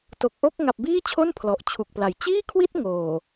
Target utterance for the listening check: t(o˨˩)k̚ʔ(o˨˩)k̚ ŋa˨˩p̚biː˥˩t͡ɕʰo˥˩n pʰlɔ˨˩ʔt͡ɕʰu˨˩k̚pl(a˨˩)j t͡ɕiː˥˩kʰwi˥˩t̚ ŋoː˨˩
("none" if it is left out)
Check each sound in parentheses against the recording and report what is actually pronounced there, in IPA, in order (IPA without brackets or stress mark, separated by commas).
o˨˩, o˥˩, a˩˦